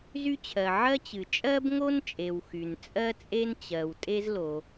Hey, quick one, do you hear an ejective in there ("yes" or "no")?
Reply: yes